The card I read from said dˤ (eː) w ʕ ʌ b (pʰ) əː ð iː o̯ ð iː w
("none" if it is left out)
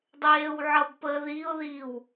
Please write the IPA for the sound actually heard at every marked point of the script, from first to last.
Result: eː, p

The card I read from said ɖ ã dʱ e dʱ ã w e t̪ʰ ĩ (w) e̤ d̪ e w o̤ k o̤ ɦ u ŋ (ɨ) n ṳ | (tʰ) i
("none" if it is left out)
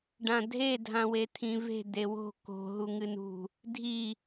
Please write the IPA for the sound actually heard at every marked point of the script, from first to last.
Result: v, ɨ, dʱ

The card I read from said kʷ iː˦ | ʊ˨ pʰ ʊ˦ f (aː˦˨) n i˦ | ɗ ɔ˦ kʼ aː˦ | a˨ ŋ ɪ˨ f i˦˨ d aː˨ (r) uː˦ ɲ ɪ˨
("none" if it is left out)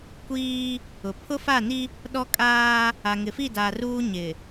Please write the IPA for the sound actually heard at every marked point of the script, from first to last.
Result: a˦˨, r

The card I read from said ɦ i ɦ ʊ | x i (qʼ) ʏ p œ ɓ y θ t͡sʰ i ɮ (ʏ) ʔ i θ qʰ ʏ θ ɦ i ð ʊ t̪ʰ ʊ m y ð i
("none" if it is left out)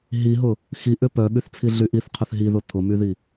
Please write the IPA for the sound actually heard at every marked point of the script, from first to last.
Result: ʔ, y

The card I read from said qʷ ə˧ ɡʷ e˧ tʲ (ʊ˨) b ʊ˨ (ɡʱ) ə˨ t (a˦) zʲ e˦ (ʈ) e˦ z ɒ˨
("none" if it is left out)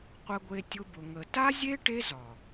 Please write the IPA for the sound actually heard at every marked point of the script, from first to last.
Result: ʊ˧, ŋ, a˦, ʈ

